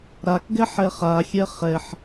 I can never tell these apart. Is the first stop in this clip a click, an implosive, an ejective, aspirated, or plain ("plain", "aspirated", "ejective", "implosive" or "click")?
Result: plain